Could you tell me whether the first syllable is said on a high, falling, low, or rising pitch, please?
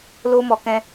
high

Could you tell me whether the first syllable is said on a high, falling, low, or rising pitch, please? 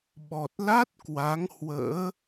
low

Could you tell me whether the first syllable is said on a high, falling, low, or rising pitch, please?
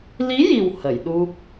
rising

